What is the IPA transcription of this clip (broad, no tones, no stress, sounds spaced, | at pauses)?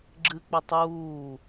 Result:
ɡ͡ǁ ɨ k͡p ɵ tˤ uː